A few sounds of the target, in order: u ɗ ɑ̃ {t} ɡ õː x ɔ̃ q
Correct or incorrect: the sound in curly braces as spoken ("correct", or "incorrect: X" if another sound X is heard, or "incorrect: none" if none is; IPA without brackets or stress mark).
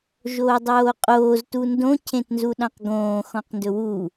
incorrect: q